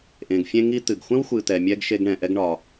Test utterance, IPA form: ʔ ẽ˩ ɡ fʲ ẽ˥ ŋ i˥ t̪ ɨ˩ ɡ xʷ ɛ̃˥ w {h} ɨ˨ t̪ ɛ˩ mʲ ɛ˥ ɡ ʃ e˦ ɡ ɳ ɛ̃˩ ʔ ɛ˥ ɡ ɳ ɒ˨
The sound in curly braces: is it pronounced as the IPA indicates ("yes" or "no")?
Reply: no